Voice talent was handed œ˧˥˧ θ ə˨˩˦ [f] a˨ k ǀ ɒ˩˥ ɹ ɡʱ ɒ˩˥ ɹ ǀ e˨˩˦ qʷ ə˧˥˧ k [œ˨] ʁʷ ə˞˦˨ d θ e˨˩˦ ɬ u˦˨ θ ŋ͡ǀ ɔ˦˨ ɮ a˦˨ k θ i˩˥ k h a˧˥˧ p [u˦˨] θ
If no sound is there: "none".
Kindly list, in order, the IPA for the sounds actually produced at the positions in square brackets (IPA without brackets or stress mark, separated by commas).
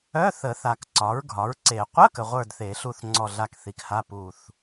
θ, ə˨, u˦˨